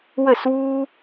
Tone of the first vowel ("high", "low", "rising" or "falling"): falling